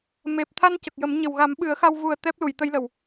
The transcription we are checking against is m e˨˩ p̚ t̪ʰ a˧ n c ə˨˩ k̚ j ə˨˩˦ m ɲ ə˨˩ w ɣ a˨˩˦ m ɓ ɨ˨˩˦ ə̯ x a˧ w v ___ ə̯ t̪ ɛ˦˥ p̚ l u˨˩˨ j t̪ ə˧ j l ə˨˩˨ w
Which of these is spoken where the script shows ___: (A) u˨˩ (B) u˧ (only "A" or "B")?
A